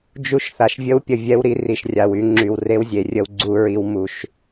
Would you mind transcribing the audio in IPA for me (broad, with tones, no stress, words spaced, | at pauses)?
d͡ʒu˦ʃθa˨ʃ vʲə˦wpʲə˨vʲɛ˦wɾi˦ ri˨ʃrʲa˨wy˦ŋ͡ǁy˨w re˦wzʲe˨rʲə˦w ɡ͡ǀu˦ɹi˦w mu˦ʃ